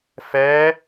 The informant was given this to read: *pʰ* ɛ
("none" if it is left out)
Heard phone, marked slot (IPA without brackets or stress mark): f